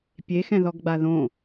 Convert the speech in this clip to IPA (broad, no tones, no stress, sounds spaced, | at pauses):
pʲ e x ɛ̃ ð ɔ ɡ ɡ͡b a ð õ